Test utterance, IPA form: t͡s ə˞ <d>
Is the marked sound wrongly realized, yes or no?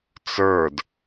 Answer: no